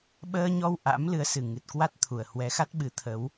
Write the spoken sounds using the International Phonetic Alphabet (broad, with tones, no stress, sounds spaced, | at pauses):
ɓ əː˧ ɲ ɔ˧ w ʔ a̰˧˥ m l ɨ˨˦ ə̯ s ɨ˨˩ ŋ ɨ˨˩ t̚ k w a˦˥ t̚ t̪ʰ u˨˩ ə̯ h w ɛ˨˦ x a˦˥ t̚ ɓ ɨ˨˦ t̪ʰ ə˨˦ w